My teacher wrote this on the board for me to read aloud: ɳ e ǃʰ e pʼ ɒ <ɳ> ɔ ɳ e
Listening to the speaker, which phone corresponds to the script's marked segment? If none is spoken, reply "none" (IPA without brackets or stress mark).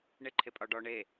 ɖ